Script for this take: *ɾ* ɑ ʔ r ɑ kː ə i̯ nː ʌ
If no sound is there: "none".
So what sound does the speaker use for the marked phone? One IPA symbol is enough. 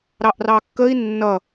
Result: ɾ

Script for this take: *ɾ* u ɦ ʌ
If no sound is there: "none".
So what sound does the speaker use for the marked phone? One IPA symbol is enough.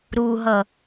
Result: ɾ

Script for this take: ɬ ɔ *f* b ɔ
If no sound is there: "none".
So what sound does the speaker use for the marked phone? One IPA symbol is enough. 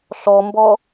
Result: m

